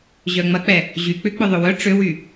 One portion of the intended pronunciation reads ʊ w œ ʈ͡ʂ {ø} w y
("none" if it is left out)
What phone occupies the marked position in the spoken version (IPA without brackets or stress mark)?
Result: ø